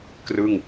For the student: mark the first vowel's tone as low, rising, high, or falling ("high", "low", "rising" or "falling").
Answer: falling